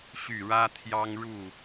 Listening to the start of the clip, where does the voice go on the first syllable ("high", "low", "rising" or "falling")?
falling